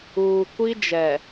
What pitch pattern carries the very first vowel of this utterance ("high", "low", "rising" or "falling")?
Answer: low